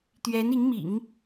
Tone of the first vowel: rising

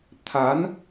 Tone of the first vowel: rising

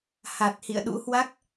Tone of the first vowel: low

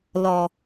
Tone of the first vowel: low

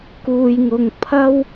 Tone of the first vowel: low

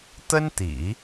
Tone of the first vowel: high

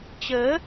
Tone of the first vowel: rising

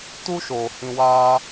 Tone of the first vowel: high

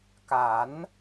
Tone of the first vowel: rising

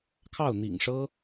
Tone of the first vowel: falling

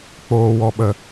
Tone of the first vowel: low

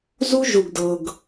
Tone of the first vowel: high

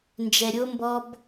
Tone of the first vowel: low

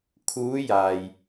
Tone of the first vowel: rising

